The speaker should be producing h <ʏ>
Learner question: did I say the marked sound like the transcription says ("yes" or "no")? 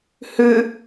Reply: yes